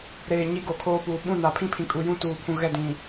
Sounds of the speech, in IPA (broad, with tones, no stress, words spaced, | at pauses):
ɾeː˨ ɲi˦ɡo˨kʰoː˦puː˨ ɓũ˦˨na˨ pʰĩ˦pʰĩ˨ kʼu˨jũ˦ tuː˨ pʰũ˨ ɣɛ˦˨dĩ˨